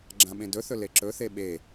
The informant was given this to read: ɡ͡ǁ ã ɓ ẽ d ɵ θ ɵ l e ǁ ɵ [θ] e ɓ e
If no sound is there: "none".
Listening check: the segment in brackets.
θ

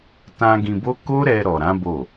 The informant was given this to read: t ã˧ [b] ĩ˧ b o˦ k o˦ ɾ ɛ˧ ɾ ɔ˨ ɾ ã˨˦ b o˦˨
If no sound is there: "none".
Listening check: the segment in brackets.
ɡ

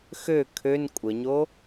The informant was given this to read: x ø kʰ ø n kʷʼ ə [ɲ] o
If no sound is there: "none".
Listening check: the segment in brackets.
ɲ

